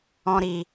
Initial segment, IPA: ɔ̃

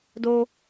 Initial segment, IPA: d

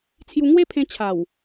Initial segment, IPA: t͡sʰ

